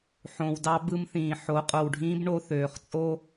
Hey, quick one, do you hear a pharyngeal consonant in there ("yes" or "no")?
yes